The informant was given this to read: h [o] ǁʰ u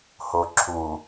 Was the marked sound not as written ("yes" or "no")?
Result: no